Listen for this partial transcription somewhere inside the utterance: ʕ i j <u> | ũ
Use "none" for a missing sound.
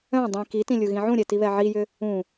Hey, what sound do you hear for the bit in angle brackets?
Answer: ʏ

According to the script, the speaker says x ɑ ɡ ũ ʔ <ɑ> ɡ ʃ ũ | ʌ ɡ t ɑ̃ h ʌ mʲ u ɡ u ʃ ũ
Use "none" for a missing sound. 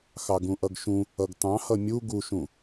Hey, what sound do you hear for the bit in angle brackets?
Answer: ʌ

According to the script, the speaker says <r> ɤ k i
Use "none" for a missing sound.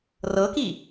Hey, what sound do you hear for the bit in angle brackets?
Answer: r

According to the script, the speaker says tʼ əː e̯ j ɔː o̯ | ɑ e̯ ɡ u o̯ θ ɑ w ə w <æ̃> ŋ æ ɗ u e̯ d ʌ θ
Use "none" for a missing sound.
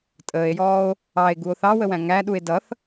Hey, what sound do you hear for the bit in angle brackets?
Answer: æ̃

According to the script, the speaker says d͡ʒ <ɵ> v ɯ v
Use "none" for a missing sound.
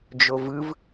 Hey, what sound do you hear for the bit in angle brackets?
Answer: o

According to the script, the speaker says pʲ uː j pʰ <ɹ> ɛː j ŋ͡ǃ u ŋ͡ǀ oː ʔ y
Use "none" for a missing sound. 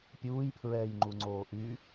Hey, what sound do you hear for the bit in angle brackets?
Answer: ɹ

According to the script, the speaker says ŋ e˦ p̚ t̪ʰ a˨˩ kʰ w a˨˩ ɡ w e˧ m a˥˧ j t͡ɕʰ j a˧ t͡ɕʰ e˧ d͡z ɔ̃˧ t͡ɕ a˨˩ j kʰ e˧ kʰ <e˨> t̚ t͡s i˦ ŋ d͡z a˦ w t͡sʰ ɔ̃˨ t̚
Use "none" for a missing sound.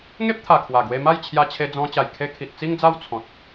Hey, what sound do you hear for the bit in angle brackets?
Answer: i˨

